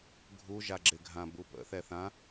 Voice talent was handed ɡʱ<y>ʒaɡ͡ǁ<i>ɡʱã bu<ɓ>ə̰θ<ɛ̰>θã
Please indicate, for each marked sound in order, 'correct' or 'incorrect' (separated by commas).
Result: incorrect, incorrect, incorrect, incorrect